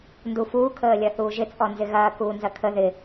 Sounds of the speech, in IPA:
n d u f uː kʰ əː lʲ ɐ θ uː ʒ ɪ t͡sʼ ɔ n z ɪ ɣ ɐː k uː n z ɐ kʰ ə ð ɪ

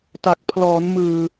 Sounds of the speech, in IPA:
t a˨˩ k̚ pʰ l ɔː˩˦ n m ɯː˨˩

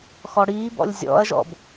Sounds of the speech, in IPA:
x ɔ ɽ iː b ɔ̰ lʲ zʲ ɔ̰ ɐ̯ ʒ ɔ̰ b

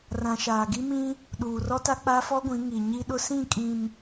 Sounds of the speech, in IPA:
r ã˨ ʃ aː˨ ɡ i˦ m ĩ˦ | ɗ uː˨ r ɔ˦ t a˦ k͡p a˦ f ɔ˦ ɡʷ ĩ˨˦ ŋ i˨ ɲ i˦ ɗ ʊ˦ s ĩ˦˨ kʼ ĩ˨ m

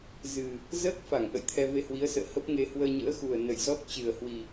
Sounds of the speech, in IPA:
z ɨ˨˩ | z əː˦˥ k̚ f a˧˩ ŋ ʔ ə̰˧˨ j t̪ʰ ɛ˧ v e˧ h w i˨˦ ə̯ s ə̰ː˧˨ h ə˦˥ p̚ ŋ e˧ h w əː˧ ɲ ə̰ː˧˥ x u˨˩ ə̯ n ə˧˩ j z ɔ˦˥ t̚ t͡ɕ ɨ˨˩ ə̯ h w i˨˩

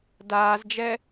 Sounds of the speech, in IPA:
d aː z d͡ʒ ɛ

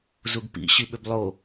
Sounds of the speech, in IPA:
z u ɡ p ḭ ɕ i ɓ ʏ b lˠ o

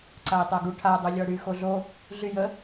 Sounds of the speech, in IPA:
ǀ a i̯ tˤ a ɡ u ʈʰ a dˤ u lʲ ɔ ɽ y x o ɮ o | ɮ y j ə

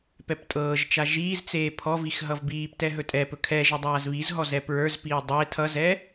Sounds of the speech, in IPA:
p ɛ p tʼ ɤː ʒ t͡ʃ a ʒ iː z t͡s eː pʰ ɔ v i x ɦ ʌ v b iː p t ɛ ɦ ɵ tʼ ɛ p ɵ kʰ ɛ ʒ ʌ dˤ aː z β i z ɦ ɔ z ɛ p ɹ ə˞ z p iː dˤ e tʰ ʌ z ɛ

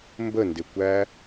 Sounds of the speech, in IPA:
m b ə n d ɪ kʷ æ

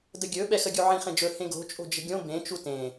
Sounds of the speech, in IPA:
d ə ɡʲ ɵ ɓ ɛ x ə ɡʲ u ʕ ĩ χ ẽ d͡ʒ ɵ h ẽ ɡ o̤ t͡ʃʼ o̤ d͡ʒ ə̤ ɡʲ õ b ẽ t͡ʃ u t ẽ

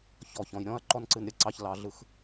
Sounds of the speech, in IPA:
ç ɔ˨ ç ɔ̃˨ j ɾʲ ɔ̃˦ ɐ̯ ǃ ɔ˦ n ǀ ɨ˧ n ɾʲ ə˨˦ ǀ ɑ˦ ç l ɑ˦ ɮ ɯ˦ x

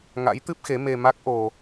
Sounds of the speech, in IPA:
ŋ a̰˧˥ j t̪ ɨ˦˥ p̚ x e˨˦ m e˧ m a˦˥ k̚ ʔ o˧

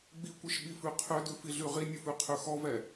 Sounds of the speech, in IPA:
ɡ͡b i kʷ i ʃ ɓ i f ʉ qʰ ø d ʉ f i ɮ ʉ ʁ i nʲ ʉ f ʉ qʰ ø x ɔ v ɛ

